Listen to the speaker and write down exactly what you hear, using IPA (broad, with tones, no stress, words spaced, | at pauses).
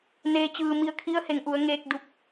neː˧t͡ɕɯː˧ mi˧ə̯ kʰi˧˥ə̯he˩˧ŋʔu˩˧ə̯ŋeː˧k̚ du˧˥p̚